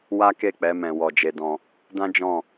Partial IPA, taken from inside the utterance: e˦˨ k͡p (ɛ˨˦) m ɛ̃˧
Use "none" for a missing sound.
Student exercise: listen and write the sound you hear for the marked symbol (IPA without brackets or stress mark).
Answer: ɛ˨˦